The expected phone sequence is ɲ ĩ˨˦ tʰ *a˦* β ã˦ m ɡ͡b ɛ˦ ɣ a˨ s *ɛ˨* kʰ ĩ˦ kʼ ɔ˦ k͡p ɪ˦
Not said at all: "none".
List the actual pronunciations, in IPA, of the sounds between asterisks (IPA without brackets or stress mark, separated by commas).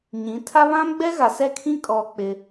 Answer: a˦, ɛ˦˨